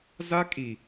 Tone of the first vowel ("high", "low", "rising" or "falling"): high